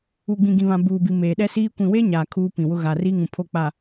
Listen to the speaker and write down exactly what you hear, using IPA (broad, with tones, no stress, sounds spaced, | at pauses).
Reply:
u˨ ɡ͡b ĩ˨ ɡ ĩ˨ β ã˨ b uː˨ b i˨ m eː˨ ɗ ɛ˦ s iː˦ kʷ ĩ˨ w e˦ ɲ aː˨ kʰ uː˦ p ĩ˨ w ʊ˦ ɣ a˨ r i˦ ŋ ũ˨ pʰ o˦˨ k͡p a˨